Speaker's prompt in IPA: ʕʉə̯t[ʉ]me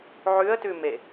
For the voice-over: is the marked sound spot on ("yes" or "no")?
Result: yes